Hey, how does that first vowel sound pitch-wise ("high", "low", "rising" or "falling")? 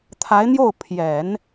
rising